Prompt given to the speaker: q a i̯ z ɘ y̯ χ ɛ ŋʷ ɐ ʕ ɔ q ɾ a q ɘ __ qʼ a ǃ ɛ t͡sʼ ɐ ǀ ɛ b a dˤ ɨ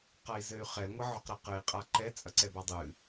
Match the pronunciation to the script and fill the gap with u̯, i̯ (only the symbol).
i̯